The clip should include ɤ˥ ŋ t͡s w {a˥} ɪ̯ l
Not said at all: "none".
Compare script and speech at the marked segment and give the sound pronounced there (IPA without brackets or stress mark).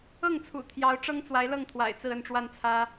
a˧˥